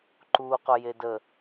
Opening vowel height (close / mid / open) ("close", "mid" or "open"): close